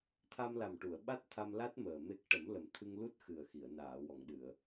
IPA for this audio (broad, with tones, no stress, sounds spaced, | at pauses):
t̪ʰ a˧ m l a˨˩ m ʈ u˨˩˨ ə̯ ɓ a˦˥ t̚ t̪ʰ a˧ m l a˦˥ t̚ m əː˨˩ m e˦˥ k̚ ʈ ə˨˩˦ m l ə˨˩ m t̪ʰ ɨ˧ ŋ l u˦˥ t̚ x ɨ˨˩ ə̯ x i˨˩˨ ə̯ n aː˨˩˨ w ɔ˨˩˨ ŋ ɗ ɨ˨˩˨ ə̯